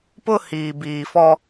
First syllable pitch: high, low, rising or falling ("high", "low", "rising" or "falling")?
high